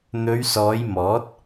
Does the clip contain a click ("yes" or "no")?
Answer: no